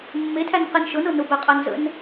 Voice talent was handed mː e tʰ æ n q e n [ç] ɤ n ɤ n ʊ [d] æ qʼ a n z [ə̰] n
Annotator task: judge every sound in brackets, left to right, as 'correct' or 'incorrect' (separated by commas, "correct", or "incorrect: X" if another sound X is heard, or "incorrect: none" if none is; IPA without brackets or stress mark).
incorrect: ʃ, incorrect: b, correct